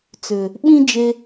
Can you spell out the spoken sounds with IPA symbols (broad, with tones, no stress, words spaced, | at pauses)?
t͡sʏ˨ | ɓĩ˦d͡ʒe˧